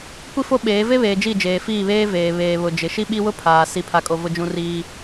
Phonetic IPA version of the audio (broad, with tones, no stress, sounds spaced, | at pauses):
kʷ i˦ f o˦ ɓ eː˨˦ v e˦ β eː˨ d͡ʒ i˦˨ d͡ʒ eː˨ f iː˦˨ β eː˦ v eː˨ β eː˨ β ʊ˨ d͡ʒ ɪ˨ ʃ i˦ ɓ i˦ w ʊ˦ pʰ aː˨ s i˦ pʰ a˦ kʼ o˦ v ʊ˦ d͡ʒ ũ˦ r iː˦